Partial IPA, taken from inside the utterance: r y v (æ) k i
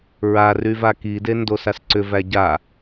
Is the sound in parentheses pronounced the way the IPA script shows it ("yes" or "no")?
no